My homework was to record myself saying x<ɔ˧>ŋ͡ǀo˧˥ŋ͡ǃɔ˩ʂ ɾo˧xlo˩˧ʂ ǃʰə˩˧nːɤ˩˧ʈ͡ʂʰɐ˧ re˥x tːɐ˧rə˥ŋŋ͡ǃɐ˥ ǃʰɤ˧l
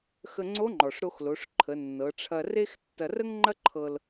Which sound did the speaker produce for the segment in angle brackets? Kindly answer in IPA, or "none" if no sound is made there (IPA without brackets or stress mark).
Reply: ə˧